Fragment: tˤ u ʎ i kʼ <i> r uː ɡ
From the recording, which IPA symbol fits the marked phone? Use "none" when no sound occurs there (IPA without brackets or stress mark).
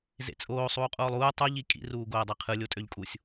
ḭ